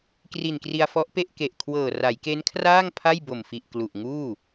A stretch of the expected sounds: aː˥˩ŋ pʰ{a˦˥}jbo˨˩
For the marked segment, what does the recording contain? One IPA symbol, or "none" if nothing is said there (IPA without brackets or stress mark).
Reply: a˥˩